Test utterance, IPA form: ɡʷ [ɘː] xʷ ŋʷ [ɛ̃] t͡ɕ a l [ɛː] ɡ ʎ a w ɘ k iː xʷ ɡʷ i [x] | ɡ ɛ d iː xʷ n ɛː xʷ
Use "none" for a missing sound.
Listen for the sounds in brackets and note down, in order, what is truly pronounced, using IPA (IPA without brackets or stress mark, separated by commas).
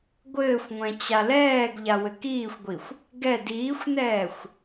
ɘː, ɛ̃, ɛː, xʷ